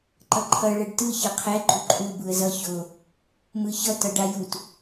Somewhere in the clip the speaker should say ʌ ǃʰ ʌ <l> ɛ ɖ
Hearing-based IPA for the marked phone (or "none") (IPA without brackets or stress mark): ɭ